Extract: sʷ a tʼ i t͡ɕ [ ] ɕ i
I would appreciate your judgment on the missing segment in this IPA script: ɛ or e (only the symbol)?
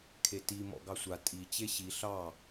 e